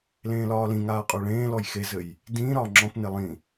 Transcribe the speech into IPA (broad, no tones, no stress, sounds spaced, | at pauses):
l ẽː l ɒː l ĩ ŋ aː qʼ ɔ ɭ ẽː l ɔ j x e z ɘ j | d ĩ ɾ ɒː ŋ͡ǁ ɔ̃ p n e lˠ ĩ